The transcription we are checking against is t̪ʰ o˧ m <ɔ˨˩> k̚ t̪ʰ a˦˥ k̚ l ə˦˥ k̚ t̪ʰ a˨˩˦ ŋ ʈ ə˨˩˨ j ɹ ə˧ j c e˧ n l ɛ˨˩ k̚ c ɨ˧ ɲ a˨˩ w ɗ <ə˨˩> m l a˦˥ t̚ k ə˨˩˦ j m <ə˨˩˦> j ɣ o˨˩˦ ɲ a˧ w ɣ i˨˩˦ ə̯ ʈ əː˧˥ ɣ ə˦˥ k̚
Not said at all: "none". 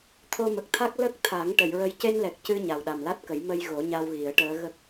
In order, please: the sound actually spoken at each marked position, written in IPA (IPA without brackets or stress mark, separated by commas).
ə˨˩, a˨˩, ə˧